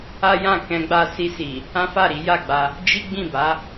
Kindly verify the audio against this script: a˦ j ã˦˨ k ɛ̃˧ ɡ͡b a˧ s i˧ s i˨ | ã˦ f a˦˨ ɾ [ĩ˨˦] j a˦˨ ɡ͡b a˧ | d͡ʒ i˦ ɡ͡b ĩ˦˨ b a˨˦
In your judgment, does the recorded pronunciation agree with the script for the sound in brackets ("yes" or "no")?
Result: no